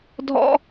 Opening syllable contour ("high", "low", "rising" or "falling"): high